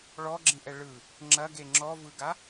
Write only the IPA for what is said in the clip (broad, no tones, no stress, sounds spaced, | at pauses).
ɭ ɔ ɡ͡ǁ ĩ ʔ ɛ ɭ ɯ | ŋ͡ǁ ɐ ɡ e ŋ͡ǁ ɔ v ɯ ɡ a